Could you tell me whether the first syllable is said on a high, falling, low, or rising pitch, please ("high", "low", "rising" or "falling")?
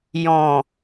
low